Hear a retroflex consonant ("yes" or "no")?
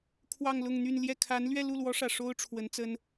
yes